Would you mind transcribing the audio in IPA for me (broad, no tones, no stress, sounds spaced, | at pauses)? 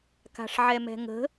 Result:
k a̤ ʂ ʕ ɛ m ɛ̤ ŋ ə̤